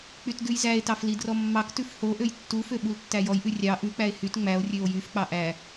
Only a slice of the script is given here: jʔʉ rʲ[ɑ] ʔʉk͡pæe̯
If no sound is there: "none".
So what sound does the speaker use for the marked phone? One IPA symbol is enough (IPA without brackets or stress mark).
ɑ